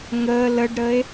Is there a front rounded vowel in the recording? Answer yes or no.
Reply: no